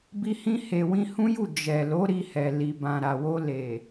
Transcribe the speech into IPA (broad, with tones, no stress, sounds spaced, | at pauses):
b i˧ h ĩ˧ h e˨ w ĩ˧ h ũ˦ j u˦˨ d͡ʒ ɛ˨ l o˨˦ ɾ i˧ h ɛ˨ l i˨ b ã˨ ɾ a˨ w o˧ l e˨